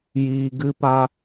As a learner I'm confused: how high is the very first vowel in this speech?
high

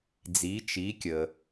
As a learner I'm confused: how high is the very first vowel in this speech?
high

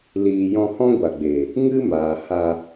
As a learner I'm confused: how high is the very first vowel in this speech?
high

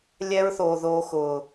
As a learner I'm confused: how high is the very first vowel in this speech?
mid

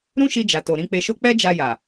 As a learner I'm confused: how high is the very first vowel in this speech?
high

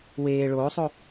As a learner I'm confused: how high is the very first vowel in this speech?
mid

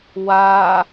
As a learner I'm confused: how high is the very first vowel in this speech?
low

